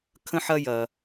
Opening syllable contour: high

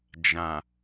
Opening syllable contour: low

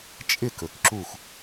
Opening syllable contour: falling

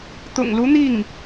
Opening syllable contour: low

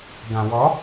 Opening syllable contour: low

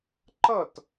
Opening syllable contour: falling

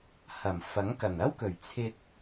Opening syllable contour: low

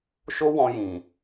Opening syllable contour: high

